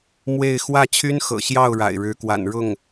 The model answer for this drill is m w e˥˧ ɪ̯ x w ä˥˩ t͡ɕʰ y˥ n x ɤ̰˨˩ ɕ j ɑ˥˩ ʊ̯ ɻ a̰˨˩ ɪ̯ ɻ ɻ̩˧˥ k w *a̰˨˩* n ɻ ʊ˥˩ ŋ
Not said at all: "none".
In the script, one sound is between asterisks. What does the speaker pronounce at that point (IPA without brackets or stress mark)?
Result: a̰˨˩